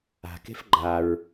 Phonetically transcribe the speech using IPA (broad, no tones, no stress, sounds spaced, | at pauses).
a̤ k e̤ f ɡ͡ǃ a ɹ